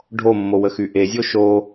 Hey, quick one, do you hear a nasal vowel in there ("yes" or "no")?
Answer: no